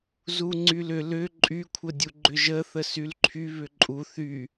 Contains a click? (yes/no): yes